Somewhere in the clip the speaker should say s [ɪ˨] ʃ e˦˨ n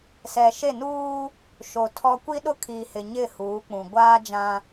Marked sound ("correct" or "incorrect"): incorrect